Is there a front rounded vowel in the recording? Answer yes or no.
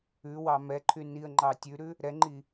yes